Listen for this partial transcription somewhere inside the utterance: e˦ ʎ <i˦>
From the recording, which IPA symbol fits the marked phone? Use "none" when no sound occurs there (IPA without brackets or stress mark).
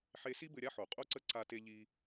i˦